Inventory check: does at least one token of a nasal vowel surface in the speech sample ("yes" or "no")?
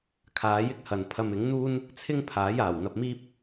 no